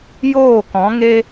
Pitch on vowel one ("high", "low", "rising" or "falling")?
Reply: falling